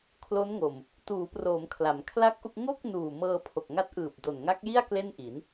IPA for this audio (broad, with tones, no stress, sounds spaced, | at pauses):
kʰ l o˦˥ n ŋ o˨˩ m | t uː˩˦ p r oː˩˦ m kʰ l a˩˦ m kʰ l a˥˩ k̚ ʔ u˥˩ k̚ ŋ o˥˩ k̚ n uː˨˩ m ɤː˧ pʰ o˨˩ k̚ ŋ a˦˥ t̚ ʔ ɯː˨˩ p̚ d o˨˩ n ŋ a˦˥ k̚ j i˥˩ a̯ k l e˥˩ n ʔ i˩˦ n